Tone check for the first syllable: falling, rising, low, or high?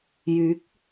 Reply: rising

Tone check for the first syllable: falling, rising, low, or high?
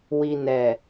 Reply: low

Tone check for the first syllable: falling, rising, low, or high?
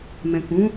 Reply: low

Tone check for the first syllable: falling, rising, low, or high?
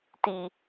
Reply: low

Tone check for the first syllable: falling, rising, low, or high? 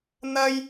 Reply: high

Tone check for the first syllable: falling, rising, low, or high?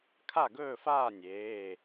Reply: falling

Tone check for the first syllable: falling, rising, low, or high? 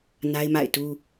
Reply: high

